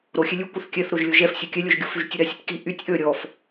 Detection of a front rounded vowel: present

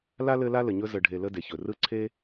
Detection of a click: present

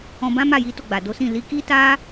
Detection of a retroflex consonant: absent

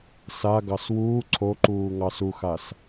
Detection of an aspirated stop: present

